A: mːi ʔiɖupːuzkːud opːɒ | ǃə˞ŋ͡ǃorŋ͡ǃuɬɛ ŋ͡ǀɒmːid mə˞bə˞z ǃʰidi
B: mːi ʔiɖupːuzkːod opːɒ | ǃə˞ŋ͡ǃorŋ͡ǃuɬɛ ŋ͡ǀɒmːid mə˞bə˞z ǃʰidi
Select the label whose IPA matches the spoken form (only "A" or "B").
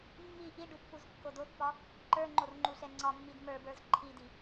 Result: B